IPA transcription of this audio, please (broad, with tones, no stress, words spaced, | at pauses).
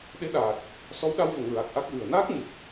ɗe˧˥ɗaː˨˩t̚ | sɔ˧˥wɗa˧wvə˨˩˨ŋ ɹa˨˩k̚ʔa˦˥k̚vɨ˨˩ə̯ naː˦˥k̚ɲɨ˨˩p̚